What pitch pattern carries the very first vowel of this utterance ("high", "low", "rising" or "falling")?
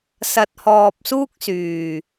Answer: low